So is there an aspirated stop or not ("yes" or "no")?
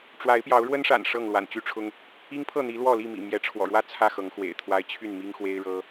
yes